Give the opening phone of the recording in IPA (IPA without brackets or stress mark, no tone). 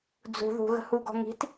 d͡z